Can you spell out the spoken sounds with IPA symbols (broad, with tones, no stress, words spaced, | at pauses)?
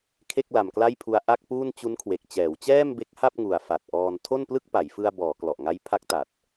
kʰe˥˩k̚la˨˩mkla˥˩jpʰu˧a̯ ʔa˥˩k̚puː˥˩n t͡ɕu˦˥nkʰwe˨˩k̚ t͡ɕɛː˩˦wt͡ɕɛː˥˩mbe˦˥k̚ha˥˩p̚ ŋu˨˩a̯ fa˨˩t̚ʔɔː˧n tʰo˥˩nplɯ˥˩k̚pa˩˦j fɯ˧a̯bɔː˩˦ klɔ˨˩ʔŋa˦˥jpʰa˦˥k̚ta˨˩t̚